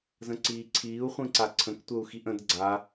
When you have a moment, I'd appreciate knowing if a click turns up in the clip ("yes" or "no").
yes